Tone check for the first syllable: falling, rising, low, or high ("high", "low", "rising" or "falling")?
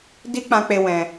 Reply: high